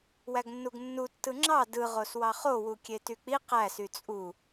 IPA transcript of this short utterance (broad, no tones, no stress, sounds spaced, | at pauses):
w æ ɡ nː u ɡ nː u tː ɯ ŋ͡ǁ ɑ d ɯ ʁ o s w ɑ χ o w u kʲ e t y k͡p i q æ s y t͡sʼ u